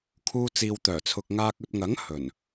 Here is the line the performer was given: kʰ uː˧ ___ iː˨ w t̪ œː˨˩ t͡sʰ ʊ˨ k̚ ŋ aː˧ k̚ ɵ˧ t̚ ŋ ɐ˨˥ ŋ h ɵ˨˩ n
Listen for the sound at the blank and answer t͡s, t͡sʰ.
t͡s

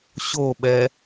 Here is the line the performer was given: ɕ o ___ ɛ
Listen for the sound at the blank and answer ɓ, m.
ɓ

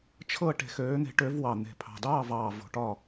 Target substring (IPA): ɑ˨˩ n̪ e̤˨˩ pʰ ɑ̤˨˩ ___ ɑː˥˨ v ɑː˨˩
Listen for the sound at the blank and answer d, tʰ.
d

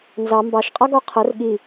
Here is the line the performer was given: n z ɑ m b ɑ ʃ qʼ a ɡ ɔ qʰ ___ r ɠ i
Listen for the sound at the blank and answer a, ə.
ə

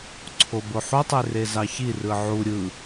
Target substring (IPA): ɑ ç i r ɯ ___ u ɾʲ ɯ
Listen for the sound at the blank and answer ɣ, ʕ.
ʕ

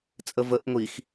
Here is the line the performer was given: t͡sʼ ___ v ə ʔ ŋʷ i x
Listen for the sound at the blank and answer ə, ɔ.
ə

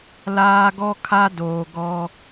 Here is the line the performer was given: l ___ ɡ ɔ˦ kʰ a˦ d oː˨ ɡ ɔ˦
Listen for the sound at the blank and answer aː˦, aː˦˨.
aː˦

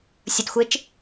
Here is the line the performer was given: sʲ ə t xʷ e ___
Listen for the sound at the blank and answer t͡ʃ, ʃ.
t͡ʃ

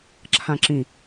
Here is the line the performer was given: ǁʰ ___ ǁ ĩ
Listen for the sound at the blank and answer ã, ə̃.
ã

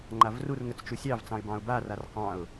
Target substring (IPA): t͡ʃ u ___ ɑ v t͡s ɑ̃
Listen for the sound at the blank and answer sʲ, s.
sʲ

